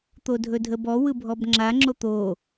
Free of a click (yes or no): no